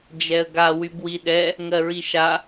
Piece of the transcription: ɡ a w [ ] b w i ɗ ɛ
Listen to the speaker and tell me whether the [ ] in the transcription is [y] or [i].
y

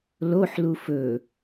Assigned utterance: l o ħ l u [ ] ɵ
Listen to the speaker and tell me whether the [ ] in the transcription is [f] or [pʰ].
f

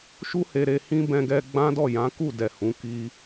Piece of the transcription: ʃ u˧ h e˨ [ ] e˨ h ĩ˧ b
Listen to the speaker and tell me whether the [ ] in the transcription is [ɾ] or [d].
ɾ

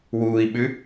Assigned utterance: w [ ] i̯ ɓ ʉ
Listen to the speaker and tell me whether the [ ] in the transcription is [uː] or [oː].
uː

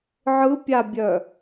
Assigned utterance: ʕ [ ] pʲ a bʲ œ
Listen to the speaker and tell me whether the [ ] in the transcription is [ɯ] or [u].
ɯ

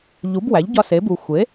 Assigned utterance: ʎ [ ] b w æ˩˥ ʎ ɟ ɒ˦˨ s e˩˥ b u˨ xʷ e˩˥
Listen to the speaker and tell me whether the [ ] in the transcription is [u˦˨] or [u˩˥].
u˩˥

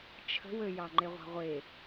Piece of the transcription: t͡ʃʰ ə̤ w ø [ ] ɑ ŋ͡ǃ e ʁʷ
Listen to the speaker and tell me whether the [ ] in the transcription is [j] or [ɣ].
j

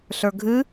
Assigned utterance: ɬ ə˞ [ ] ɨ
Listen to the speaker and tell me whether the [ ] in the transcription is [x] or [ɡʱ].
ɡʱ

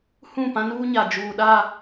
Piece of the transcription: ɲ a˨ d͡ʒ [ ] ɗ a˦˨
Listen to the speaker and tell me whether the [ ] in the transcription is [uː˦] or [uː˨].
uː˨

